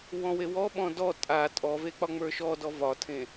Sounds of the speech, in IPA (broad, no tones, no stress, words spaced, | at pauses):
wɔ̃wewɔɓɔ̃ dɔ tʼa tʼɔve k͡pɒŋ͡mə˞ʃɔdɔ vɒtʰẽ